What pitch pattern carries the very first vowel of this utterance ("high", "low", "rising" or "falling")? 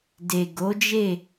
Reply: low